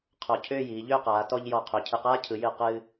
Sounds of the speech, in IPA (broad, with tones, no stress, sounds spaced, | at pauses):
qʰ ɔ˧˩ cʰ ʏː˥˧ j iː˩˧ ʎ ʏː˥˧ q aː˩˧ t ɔ˧ ʎ j ɔ˧˩ qʰ ʏː˩˧ cʰ ɨ˧˩ q aː˥ cʰ ɯ˩˧ j ɨ˧˩ q ɨː˧